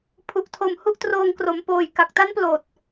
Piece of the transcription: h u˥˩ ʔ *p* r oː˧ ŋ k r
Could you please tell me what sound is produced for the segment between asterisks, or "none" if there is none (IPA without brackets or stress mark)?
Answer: t